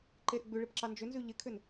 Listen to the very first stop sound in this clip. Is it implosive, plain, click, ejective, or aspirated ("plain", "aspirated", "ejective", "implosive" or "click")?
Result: click